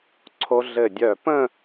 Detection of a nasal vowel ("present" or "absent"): present